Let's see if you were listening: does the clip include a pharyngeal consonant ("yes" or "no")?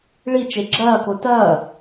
no